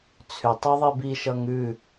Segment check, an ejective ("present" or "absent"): absent